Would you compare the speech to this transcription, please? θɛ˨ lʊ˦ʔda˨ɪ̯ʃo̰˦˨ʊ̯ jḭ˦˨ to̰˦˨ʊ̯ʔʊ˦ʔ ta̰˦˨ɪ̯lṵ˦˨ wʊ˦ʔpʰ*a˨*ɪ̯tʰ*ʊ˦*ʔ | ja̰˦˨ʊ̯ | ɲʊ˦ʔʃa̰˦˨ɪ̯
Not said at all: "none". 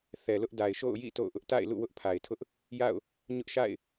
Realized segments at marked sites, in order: a˨, ʊ˦

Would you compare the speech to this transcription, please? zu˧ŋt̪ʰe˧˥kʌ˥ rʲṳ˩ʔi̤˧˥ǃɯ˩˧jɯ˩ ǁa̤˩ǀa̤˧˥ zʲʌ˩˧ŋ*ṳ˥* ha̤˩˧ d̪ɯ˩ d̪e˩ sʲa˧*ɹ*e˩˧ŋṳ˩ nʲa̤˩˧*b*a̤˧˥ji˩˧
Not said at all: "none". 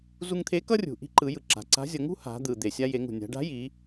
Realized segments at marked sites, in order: ṳ˥, j, ɖ

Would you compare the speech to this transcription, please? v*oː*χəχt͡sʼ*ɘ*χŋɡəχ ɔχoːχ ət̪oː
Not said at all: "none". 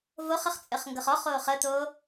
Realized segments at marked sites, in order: o, ɘ

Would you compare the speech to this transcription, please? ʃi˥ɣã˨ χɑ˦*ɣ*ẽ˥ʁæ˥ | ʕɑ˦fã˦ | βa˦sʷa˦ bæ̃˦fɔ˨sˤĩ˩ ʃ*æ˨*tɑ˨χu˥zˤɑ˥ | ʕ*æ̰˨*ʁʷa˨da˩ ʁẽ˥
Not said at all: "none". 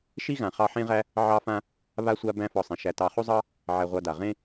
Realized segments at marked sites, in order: ħ, æ˨, æ˨

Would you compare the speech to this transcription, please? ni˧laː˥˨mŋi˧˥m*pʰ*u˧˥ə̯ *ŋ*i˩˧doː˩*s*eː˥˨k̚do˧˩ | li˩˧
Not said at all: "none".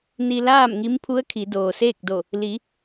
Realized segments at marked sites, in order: pʰ, kʰ, s

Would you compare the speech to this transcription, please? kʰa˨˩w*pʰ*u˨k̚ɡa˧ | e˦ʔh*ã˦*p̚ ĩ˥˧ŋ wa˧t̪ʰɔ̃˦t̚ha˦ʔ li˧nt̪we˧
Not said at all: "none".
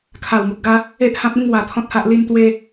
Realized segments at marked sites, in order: m, ã˦

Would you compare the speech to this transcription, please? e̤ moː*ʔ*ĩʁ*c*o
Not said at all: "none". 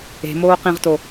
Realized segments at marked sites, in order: q, t

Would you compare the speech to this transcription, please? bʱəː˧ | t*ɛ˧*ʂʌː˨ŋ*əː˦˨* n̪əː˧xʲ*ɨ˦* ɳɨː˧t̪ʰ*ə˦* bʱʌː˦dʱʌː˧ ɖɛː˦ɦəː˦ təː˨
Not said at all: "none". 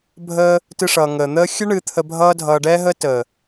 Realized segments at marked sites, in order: ɨ˧, əː˨, ɨ˦, ə˧

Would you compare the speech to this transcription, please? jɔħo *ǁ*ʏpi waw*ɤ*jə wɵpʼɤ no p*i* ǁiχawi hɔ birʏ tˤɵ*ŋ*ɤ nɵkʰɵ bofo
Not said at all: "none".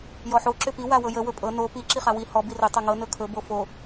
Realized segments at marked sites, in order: ǁ, ɤ, i, ŋ

